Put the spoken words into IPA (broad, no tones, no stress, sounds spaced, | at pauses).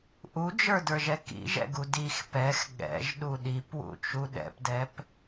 ʔ u d͡ʒ ə˞ d ə˞ ʒ ɛ k ḭ ʒ ɛ̰ ɡ u d i x p ɛ x ɠ ɛ̰ ʒ ɗ u ɗ i p w ṵ t͡ʃ u ɗ ɛ̰ p d ɛ p